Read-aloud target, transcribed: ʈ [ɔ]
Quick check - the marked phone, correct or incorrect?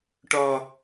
correct